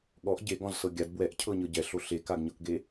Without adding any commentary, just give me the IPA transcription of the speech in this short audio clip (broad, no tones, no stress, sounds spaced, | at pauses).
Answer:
ɠ ɔ ʔ ɟ e ɡ ɔ̃ z s ɤ ɡʲ a d b w ɛ ʔ cʰ ɤ ɲ ɤ ɟ ɛ ɬ o ɬ e k a ɡ ɲ ɤ k ɡ e